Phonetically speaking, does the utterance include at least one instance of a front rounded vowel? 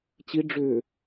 yes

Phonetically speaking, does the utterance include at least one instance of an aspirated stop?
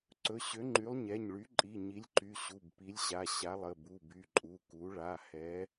no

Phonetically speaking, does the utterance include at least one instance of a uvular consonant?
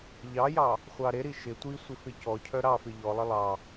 yes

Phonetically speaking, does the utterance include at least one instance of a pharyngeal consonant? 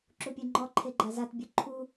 no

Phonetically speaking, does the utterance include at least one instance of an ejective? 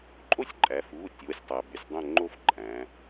yes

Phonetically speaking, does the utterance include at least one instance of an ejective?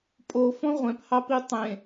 yes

